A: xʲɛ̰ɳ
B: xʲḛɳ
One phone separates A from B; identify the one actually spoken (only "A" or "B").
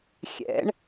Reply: A